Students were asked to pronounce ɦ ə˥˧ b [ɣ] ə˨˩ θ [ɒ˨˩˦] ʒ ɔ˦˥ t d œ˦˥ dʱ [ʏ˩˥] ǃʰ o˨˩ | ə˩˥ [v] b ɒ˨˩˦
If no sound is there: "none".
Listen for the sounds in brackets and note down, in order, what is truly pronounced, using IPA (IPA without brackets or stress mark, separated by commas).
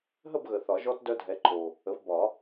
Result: ɣ, ɒ˨˩˦, ɛ˩˥, v